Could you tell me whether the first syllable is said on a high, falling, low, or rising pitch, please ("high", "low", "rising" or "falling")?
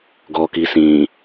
low